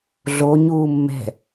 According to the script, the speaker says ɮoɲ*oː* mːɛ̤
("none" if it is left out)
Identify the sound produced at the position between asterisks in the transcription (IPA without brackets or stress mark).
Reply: uː